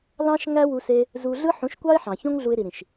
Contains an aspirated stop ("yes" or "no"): no